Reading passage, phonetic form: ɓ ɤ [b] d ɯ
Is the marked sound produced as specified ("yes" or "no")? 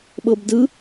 yes